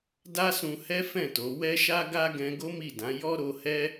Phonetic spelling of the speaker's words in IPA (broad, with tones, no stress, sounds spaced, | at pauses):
d a˦ s ũ˧ h ɛ˦ f ɛ̃˦˨ t o˨˦ w ɛ˦ ʃ a˦ ɡ a˦ ɡ ɛ̃˧ ɡ o˦ m i˦˨ d ã˨˦ j ɔ˦ ɾ o˧ h ɛ˦